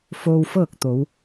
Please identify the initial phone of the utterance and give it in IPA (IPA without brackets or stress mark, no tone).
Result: f